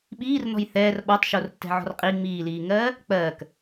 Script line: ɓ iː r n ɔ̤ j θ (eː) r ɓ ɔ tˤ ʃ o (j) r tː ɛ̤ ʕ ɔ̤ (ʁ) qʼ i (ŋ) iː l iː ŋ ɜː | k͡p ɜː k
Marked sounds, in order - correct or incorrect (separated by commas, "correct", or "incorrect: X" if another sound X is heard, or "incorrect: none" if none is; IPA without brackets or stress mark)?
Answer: incorrect: ɛː, incorrect: none, incorrect: r, incorrect: ŋ͡m